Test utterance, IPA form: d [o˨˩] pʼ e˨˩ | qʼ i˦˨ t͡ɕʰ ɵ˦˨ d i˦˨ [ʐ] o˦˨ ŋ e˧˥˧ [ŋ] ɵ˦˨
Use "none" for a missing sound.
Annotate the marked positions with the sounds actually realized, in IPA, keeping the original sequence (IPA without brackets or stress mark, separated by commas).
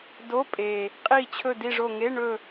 o˧˥˧, ʐ, ɳ